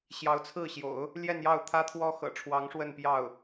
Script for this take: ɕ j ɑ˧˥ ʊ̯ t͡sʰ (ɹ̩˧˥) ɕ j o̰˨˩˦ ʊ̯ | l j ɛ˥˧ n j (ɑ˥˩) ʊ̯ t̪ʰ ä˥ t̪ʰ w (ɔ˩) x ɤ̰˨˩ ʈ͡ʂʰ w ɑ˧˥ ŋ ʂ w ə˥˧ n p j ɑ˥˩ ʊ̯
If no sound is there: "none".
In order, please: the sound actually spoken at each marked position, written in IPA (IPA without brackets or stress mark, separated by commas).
ɹ̩˥˩, ɑ˥˩, ɔ˥